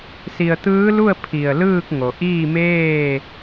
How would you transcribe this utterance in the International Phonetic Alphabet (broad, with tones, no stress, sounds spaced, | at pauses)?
s i˧ ə̯ t̪ ɯː˧˥ l u˥˨ ə̯ pʰ i˧˩ ə̯ l ɯː˥˨ k̚ ŋ o˩ ʔ iː˥˨ m eː˥˨